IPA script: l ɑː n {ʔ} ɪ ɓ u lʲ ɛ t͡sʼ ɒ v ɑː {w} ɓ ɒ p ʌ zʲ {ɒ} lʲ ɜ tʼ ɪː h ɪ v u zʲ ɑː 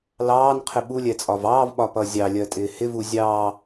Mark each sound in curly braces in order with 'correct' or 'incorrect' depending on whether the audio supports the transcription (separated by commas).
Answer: incorrect, incorrect, incorrect